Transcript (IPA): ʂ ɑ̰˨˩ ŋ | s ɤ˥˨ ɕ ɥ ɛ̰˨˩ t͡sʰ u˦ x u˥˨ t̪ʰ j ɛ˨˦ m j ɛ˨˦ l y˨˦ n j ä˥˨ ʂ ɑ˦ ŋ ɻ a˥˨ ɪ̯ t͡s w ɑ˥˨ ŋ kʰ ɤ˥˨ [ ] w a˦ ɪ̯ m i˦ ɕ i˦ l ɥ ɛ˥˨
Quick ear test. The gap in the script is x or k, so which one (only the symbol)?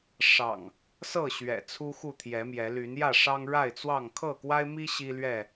k